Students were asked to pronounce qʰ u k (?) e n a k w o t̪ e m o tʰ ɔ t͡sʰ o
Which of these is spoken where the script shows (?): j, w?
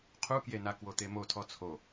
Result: j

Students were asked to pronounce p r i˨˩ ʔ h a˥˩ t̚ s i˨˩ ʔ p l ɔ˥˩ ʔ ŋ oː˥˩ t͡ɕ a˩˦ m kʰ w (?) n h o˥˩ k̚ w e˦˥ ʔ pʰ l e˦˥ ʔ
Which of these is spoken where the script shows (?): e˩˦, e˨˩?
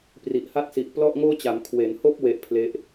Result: e˩˦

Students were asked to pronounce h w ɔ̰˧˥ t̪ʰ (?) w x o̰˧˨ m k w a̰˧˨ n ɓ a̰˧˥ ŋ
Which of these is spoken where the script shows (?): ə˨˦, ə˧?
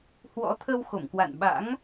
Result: ə˧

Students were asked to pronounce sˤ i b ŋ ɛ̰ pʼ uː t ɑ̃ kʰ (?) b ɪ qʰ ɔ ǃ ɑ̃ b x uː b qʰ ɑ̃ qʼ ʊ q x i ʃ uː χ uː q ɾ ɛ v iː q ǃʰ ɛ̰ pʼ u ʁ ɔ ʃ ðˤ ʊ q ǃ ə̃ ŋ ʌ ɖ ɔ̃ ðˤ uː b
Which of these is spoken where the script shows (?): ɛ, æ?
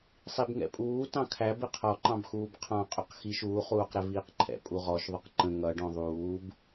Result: æ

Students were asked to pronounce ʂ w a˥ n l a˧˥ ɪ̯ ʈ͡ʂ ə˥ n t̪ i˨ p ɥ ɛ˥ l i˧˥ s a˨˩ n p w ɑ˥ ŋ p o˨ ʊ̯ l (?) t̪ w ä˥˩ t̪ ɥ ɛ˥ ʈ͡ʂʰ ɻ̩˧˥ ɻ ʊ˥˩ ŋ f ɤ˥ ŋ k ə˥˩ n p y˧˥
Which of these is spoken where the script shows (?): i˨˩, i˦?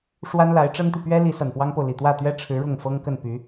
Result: i˨˩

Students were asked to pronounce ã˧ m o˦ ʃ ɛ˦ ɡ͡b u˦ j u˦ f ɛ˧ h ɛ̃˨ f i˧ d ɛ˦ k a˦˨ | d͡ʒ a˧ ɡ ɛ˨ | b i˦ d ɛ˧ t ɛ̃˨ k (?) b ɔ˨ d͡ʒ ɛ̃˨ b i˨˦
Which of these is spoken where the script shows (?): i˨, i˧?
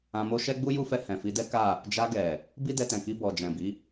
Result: i˧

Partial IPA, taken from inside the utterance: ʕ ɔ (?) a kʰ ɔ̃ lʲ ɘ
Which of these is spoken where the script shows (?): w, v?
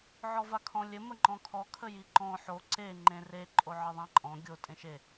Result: v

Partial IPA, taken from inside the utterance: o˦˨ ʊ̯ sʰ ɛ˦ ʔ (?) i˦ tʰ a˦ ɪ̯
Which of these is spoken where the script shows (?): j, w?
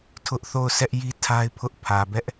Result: j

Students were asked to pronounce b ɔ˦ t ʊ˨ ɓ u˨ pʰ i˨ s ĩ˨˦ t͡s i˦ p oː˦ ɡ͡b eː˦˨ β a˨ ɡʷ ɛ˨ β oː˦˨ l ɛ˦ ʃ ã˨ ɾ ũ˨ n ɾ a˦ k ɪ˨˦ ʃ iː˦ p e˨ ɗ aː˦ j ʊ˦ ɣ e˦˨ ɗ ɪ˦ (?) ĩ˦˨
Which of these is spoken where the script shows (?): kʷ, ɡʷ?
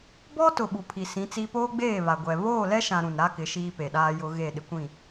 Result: kʷ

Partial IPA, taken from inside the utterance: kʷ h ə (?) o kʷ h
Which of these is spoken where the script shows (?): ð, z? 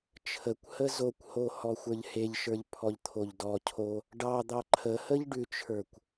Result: z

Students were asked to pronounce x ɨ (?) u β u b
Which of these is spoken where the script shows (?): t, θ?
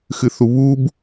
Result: θ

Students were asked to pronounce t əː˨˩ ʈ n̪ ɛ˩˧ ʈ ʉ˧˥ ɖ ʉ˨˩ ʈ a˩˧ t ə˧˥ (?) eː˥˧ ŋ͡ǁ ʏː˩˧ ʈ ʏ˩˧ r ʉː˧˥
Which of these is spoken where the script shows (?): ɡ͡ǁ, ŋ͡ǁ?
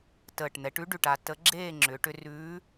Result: ɡ͡ǁ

